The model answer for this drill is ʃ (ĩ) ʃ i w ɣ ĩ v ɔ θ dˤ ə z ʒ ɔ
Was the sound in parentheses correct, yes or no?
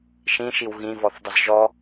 yes